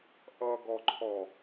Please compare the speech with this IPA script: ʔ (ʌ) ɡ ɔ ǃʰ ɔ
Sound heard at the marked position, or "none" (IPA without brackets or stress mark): ʌ